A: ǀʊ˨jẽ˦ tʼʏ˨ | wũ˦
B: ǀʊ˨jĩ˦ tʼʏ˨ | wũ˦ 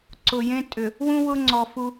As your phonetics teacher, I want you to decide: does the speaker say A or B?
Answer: A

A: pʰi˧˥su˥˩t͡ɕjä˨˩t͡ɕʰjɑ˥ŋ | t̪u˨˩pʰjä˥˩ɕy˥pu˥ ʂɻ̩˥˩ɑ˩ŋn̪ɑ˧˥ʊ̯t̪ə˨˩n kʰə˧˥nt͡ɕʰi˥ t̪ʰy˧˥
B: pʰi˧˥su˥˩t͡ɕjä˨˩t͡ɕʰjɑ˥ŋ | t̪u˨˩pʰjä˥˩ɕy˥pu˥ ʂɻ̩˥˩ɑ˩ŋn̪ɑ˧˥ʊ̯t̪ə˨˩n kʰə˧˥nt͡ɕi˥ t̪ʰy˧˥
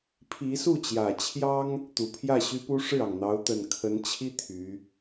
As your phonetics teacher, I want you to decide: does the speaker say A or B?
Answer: A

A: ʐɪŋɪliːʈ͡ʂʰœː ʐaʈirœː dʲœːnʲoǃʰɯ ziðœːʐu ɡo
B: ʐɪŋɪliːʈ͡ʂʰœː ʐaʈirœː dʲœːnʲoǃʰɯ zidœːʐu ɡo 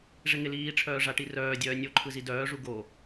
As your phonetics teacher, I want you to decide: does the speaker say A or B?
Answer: B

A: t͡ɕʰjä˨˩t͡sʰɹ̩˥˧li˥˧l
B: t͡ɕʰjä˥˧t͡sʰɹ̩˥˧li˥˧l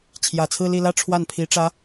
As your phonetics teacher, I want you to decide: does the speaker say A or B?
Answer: A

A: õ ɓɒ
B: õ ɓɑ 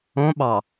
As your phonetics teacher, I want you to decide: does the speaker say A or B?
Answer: B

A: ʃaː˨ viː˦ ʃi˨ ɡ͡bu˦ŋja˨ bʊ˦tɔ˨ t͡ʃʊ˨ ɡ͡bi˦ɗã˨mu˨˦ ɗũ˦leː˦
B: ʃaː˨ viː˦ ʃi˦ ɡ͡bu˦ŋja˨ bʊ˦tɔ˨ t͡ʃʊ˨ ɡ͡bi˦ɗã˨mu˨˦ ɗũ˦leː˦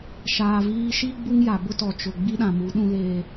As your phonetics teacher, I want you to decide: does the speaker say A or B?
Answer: B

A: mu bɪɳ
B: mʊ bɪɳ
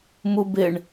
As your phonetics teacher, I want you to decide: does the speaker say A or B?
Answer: A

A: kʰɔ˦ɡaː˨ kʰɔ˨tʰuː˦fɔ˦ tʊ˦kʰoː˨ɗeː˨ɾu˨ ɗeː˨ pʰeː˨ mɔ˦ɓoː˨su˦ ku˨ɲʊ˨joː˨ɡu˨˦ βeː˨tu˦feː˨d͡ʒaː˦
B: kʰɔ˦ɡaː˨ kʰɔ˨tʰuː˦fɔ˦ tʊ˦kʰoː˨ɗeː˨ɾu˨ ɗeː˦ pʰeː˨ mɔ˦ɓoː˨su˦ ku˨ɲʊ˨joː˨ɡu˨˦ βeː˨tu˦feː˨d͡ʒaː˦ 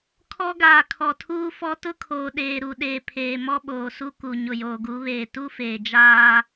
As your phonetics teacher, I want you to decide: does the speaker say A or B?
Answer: A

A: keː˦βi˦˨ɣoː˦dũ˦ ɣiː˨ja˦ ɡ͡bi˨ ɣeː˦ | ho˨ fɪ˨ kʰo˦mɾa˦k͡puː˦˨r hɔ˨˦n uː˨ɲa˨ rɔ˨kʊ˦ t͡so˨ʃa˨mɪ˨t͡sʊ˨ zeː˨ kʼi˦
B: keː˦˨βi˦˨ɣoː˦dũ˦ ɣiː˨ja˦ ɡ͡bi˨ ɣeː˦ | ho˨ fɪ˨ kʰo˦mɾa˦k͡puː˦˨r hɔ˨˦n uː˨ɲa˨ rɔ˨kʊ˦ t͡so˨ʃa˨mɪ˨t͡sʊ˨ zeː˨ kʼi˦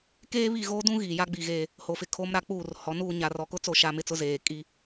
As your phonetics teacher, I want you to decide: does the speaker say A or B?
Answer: A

